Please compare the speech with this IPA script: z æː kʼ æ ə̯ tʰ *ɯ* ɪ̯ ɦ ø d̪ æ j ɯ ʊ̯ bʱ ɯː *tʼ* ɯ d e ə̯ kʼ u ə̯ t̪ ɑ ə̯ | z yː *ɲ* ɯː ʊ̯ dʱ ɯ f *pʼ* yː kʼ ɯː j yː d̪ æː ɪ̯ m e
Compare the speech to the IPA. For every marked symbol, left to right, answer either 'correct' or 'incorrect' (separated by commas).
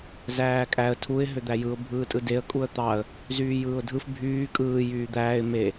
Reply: incorrect, correct, incorrect, incorrect